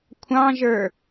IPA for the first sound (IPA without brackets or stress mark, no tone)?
kʷʰ